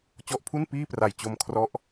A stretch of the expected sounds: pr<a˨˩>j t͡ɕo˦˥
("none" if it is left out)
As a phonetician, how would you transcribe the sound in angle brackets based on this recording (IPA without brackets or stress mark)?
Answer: a˨˩